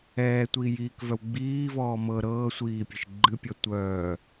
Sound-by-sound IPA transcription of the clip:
ɛː tʷ iː j iː k v œ w ɡ͡b iː v ɔː m ɤ ɾ ɤː sʷ iː pʲ ɨ ʃ ɡ͡ǃ ɨ pʲ ɔ tʷ œː

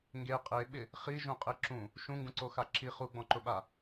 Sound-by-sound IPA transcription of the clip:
ŋ ɡ e qʼ e ɓ ɪ | χ i ʒ ũ qʼ e ǁ ũ | ʃ ũ ŋ ɡ ũ ǀ o x a ǁ i χ u ɡ͡b ɔ̃ ǃ ʊ ɓ a

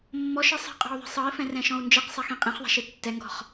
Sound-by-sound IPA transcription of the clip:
mː ɔ ʃ ɯ sˤ i̤ qʼ ɔ̤ u̯ ðˤ e̤ sˤ ɤ i̯ f ɛ̃ r ɛ̃ ʃ ɔ̃ u̯ n d͡ʒ i q sˤ ɛ x ĩ qʼ ĩ χ ðˤ ɛ̤ ʃ i tː ɛ ŋ ɡ ɔ̤ χ

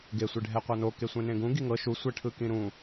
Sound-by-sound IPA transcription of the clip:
ɡ e sʷ e ɖʱ ɛ qʷ a n o k e sʷ ẽ n ẽ ɡ ũ ɡ i ŋ ɤ ʃ u sʷ ɛ ʈʰ ɯ k ĩ ɾ ũ

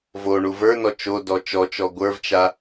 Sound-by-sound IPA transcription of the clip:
v o ɳ u v ə˞ n ɔ t͡ʃ o d ɔ t͡ʃ ɔ t͡ʃ ɔ ɡʷ ə˞ v t͡ʃ a

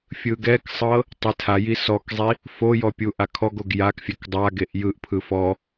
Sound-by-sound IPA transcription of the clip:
fʲ ɯ ɡ ɛ k sˤ ɤ | tˤ e tʰ a j i s ɔ k zˤ i | f o j ɔ pʲ u ʔ a kʰ ɔ ɡ o ɡ j a k fʲ ɛ k dˤ a ɡ e ʔ j ɯ ʔ pʰ ɯ f ɔ

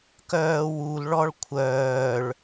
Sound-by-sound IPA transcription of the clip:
k œː w u l ɭ ɔ ɭ kʷʰ œː ɭ

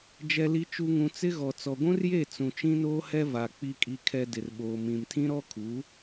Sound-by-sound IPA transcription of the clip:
d͡ʒ ɛ˨ l i˨ t͡ʃ u˨ ŋ ũ˨ t͡s ɪ˦ ɣ ɔ˨ t͡s ɔ˨ ɡʷ ũ˦ r j e˦˨ t͡s ũ˨ t͡ʃ ĩ˦ n oː˦ h ɛ˦ v a˨ k͡p i˨ kʼ i˨ kʰ ɛ˨ d ɪ˨ r ɓ oː˨ m ĩ˨ m tʰ ĩ˦ ɾ ɔ˦ kʰ u˨˦

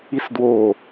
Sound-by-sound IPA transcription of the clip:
i s d w oː

